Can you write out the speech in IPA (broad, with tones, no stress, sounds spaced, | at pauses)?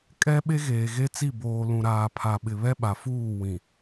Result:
kʼ ɛ˦ ɓ e˦ ɣ eː˨ ɣ e˦ t͡s i˦˨ b oː˨ l ũ˨ ɾ aː˨ pʰ a˨ ɓ ɪ˨ β ɛ˦ ɓ a˨ f uː˦˨ w ĩ˨